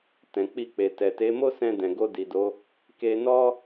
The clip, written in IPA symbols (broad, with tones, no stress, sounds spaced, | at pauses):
t ɛ̃˨ k͡p i˧ k͡p e˨ t ɛ˨ t e˨˦ m o˦ s ɛ̃˧ d ɛ̃˨ ɡ o˧ d i˨ d o˨˦ | k e˧ n ɔ˦